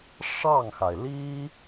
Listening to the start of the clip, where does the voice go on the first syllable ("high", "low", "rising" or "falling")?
falling